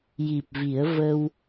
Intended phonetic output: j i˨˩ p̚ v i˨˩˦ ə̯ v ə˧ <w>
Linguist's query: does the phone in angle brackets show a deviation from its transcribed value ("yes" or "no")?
no